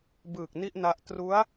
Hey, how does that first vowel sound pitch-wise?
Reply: low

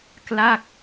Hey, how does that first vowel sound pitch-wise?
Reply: falling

